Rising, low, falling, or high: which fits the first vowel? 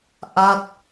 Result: falling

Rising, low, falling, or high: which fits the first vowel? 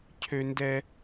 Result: high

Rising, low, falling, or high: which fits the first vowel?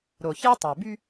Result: low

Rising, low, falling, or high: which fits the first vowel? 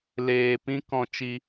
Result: low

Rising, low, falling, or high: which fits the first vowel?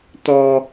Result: high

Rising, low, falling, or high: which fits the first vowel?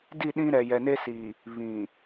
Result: falling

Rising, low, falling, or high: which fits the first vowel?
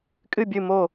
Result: falling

